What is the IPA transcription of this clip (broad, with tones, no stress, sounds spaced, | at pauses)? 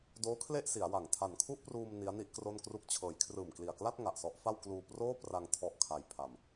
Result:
d oː˦˥ kʰ l e˥˩ ʔ s i˩˦ a̯ w a˨˩ ŋ tʰ a˨˩ n kʰ u˥˩ ʔ p r uː˧ m n i˦˥ a̯ n i˥˩ ʔ k r o˥˩ n k r u˥˩ k̚ t͡ɕʰ ɤː˩˦ j kʰ r ɯː˨˩ m k l i˨˩ a̯ k l a˥˩ t̚ ŋ a˨˩ ʔ s ɔ˦˥ ʔ f a˥˩ w k l uː˧ p r oː˥˩ p r a˧ ŋ tʰ ɔ˦˥ ʔ kʰ a˧ j pʰ a˧ m